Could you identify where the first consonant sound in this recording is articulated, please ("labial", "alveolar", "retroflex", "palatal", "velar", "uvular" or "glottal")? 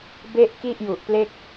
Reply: labial